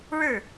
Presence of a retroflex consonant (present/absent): present